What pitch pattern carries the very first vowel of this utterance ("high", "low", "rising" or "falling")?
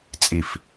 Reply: low